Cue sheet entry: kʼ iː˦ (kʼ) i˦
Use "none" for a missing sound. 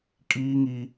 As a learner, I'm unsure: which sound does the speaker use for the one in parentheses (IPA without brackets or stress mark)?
ŋ